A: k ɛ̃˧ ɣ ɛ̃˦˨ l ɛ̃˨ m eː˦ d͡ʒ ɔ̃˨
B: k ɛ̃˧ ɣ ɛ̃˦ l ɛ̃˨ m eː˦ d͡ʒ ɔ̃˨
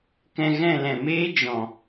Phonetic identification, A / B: A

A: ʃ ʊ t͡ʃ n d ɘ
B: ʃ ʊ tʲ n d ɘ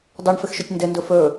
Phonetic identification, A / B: B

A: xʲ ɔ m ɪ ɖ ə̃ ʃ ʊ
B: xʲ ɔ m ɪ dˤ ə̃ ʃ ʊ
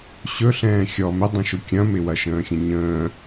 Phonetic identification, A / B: B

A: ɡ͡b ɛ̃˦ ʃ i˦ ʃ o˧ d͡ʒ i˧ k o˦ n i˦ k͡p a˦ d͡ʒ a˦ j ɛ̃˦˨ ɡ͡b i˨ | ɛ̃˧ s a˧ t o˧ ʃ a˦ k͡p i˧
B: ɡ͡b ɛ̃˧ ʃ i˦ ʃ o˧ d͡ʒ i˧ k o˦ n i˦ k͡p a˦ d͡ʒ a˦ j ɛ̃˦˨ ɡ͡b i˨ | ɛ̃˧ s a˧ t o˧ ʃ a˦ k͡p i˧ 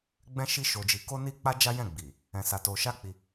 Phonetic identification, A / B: A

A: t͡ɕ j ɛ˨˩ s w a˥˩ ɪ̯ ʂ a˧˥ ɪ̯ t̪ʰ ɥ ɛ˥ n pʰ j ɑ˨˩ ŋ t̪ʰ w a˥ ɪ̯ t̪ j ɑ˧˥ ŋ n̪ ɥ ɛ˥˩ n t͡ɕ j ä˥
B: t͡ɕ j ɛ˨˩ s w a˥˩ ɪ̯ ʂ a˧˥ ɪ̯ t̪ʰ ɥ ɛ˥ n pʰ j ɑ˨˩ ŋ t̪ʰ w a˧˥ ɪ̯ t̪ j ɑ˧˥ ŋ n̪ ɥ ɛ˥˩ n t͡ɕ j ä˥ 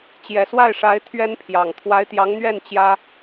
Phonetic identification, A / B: B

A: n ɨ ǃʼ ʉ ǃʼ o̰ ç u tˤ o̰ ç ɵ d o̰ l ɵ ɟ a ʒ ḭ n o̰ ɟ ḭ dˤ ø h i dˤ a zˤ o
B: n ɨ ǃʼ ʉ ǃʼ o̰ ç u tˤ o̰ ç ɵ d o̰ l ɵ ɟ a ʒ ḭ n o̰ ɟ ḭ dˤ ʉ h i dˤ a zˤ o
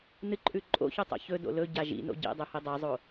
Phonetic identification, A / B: B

